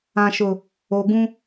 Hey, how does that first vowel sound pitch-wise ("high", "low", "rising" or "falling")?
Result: low